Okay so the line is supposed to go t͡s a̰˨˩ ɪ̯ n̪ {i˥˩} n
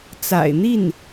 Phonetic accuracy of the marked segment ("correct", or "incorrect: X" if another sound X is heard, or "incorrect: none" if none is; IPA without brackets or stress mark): correct